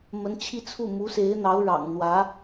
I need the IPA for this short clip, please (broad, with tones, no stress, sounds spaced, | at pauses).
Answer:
m ə˧˥ n t͡ɕʰ i˥˧ t͡sʰ u˥˩ m u˧˥ s e˧˥ ɪ̯ n̪ ɑ˧˥ ʊ̯ ɻ ɑ̰˨˩ ŋ n̪ w ä˧˥